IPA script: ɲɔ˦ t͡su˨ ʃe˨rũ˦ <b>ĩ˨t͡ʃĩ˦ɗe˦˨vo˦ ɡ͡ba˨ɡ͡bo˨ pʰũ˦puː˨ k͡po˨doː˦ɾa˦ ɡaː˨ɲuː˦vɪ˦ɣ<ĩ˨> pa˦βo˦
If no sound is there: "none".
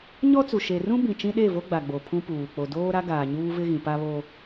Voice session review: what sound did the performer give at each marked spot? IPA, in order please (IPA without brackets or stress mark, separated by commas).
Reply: b, ĩ˨